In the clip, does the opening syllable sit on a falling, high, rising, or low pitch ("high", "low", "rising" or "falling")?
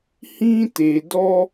high